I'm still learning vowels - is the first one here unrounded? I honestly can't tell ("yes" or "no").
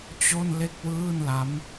no